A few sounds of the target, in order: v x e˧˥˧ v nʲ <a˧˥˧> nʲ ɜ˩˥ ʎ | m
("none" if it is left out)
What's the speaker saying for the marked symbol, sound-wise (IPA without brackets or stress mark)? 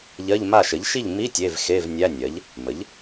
æ˧˥˧